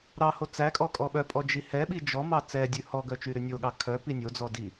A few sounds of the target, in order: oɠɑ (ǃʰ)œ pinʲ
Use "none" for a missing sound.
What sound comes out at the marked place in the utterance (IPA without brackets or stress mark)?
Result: kʰ